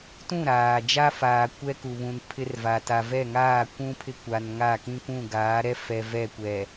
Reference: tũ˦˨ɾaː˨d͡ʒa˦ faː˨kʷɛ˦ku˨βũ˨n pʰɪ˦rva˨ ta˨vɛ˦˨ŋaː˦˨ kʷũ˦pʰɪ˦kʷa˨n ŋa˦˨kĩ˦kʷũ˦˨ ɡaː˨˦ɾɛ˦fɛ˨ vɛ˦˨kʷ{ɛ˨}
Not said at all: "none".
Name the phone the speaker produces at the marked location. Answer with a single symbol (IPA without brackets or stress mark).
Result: ɛ˨